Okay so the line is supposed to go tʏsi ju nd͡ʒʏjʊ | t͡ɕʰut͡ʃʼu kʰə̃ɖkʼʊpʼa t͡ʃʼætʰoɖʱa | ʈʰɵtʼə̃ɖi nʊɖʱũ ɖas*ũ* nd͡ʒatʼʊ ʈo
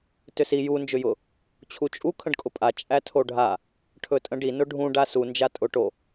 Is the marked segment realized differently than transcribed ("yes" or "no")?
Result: yes